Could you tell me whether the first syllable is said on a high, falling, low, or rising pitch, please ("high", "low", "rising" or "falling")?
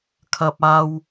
high